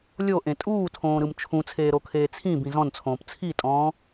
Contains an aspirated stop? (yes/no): yes